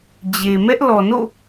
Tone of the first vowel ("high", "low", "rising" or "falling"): low